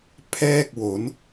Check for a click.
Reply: absent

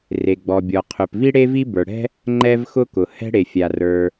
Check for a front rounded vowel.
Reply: absent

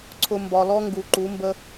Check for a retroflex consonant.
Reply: absent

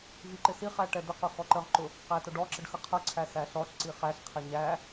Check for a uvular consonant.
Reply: present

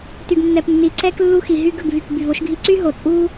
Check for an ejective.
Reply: present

